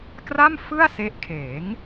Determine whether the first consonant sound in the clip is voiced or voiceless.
voiceless